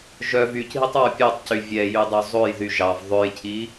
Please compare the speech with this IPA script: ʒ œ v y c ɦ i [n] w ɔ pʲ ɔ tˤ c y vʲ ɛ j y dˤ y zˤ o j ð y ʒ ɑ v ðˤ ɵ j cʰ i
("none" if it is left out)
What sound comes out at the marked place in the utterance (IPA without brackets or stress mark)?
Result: tˤ